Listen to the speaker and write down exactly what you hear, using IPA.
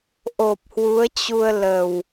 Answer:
ʔ o˨˩ p̚ h w u˨˦ ə̯ t͡ɕ u˧ ə̯ l ə˨˩ w

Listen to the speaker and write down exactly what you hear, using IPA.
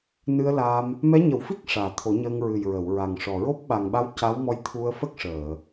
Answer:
n ɨ˧ ə̯ l a˧ m | m ɛ˧˥ ɲ ə˨˩˦ w f i˦˥ k̚ ʂ aː˨˩ t̪ʰ o˨˩˦ ɲ əː˧ ŋ ɹ ɨ˨˩ j ɹ ə˨˩˨ w ɹ a˨˩ ŋ ʂ ɔ˨˩ ɹ o˦˥ p̚ ɓ a˨˩ ŋ ɓ a˧˥ w c a˧˥ w m ɔ˧ j t̪ʰ u˧ ə̯ f ə˦˥ k̚ ʂ əː˨˩˨

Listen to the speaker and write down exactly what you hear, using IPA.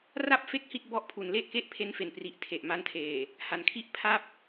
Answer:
r a˥˩ p̚ f e˦˥ k̚ h i˥˩ t̚ b ɔ˦˥ ʔ pʰ u˩˦ n l e˥˩ ʔ k e˥˩ ʔ pʰ e˦˥ n f e˨˩ n p r i˨˩ ʔ tʰ e˨˩ ʔ m a˧ n tʰ eː˨˩ | h a˩˦ n kʰ i˥˩ ʔ pʰ a˥˩ p̚

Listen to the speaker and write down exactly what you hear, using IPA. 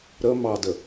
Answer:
ɾ ə m ɑ d ə

